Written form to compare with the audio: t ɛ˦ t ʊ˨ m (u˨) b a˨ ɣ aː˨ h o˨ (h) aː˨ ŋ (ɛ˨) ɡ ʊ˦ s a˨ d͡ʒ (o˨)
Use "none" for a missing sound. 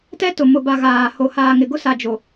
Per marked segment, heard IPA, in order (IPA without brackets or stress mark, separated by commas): ʊ˨, h, ɪ˨, o˨